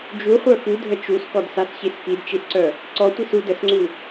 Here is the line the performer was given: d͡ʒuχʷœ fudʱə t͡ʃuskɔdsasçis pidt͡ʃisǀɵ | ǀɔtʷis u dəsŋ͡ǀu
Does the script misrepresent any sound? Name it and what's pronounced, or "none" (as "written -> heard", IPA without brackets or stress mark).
ɵ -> œ